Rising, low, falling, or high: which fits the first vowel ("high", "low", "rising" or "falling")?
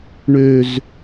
low